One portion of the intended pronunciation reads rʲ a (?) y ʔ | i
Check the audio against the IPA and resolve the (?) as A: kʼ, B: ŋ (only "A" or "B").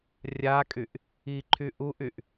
A